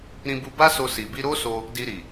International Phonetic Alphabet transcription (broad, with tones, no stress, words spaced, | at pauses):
ɾĩ˧bu˧ ba˦so˧ si˨bi˧ ɾo˦so˧ | di˧ɾi˨